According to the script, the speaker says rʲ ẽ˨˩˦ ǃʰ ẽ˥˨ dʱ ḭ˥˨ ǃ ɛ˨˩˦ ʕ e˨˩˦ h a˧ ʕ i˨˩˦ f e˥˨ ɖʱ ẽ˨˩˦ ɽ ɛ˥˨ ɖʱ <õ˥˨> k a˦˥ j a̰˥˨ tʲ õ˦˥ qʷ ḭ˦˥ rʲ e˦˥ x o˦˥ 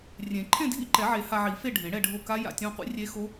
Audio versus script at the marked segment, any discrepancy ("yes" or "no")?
yes